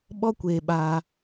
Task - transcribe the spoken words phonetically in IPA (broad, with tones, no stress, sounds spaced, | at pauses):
ɓ ɔ˦ kʷ eː˧ ɓ aː˧